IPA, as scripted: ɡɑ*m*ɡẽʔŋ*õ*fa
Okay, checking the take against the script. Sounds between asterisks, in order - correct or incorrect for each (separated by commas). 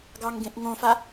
incorrect, correct